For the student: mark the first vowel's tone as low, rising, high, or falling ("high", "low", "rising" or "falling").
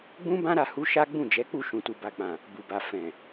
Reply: high